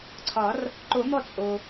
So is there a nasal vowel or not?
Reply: no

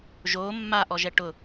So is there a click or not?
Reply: no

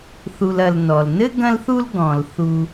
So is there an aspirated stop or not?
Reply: no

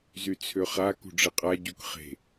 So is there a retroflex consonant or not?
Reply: yes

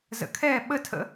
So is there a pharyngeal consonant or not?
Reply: no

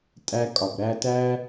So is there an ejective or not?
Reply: yes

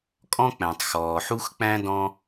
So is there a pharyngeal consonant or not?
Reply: yes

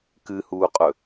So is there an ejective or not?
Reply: yes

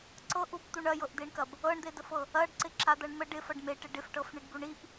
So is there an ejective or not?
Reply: no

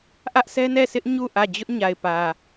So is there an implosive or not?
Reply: no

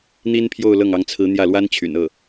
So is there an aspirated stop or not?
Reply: yes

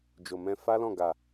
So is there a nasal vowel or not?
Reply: yes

